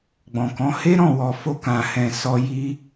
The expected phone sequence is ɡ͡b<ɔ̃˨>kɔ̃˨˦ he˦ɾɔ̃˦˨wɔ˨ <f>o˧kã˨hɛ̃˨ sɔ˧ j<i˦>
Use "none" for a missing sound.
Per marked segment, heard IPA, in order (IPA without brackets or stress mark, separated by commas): ɔ̃˨, f, i˦